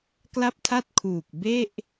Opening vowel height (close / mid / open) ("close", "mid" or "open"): open